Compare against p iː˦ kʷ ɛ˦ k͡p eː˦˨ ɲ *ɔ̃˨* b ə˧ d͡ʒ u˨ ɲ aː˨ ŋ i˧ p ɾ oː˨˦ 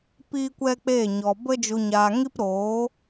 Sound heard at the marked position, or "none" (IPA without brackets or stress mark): ɔ˨